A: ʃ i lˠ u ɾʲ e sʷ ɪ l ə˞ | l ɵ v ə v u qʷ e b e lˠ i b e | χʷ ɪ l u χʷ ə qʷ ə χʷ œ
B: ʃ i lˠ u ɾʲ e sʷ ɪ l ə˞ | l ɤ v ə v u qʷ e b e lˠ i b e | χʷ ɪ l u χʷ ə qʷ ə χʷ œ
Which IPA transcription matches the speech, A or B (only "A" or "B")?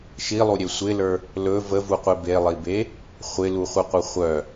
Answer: A